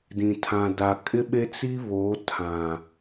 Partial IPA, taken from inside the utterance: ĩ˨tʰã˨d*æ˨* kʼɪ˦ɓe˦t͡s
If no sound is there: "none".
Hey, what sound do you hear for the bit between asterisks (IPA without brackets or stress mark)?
a˨